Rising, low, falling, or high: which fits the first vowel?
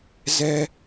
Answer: low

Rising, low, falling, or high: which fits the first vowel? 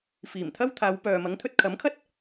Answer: low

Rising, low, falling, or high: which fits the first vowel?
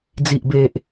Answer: low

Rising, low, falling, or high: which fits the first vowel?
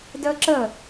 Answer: high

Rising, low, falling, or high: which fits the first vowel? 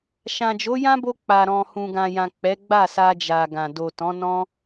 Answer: low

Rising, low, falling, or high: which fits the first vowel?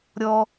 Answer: high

